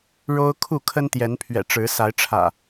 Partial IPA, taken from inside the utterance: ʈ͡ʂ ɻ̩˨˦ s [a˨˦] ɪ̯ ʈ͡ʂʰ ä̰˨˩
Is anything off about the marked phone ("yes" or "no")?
no